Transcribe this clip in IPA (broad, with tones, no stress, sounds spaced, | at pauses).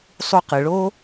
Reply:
sˤ u˧ q ɯ˨ ɭ o˦